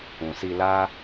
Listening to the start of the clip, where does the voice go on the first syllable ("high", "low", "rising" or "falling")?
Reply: low